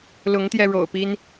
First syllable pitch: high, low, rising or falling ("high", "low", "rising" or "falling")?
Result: rising